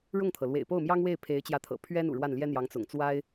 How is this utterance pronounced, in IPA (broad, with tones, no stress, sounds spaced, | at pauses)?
ɻ ʊ˥˩ ŋ t̪ʰ ɤ˩ l w ḛ˨˩ ɪ̯ p o˥˩ ʊ̯ m j ɑ˥ ŋ w e˥˩ ɪ̯ pʰ e˧˥ ɪ̯ t͡ɕ j ä˧˥ t̪ʰ ɤ̰˨˩ pʰ ɥ ɛ˥ n ṵ˨˩ ɻ w a˥˩ n l j ɛ˥ n̪ j ɑ˧˥ ŋ t͡s ʊ̰˨˩ ŋ t͡s w a˥ ɪ̯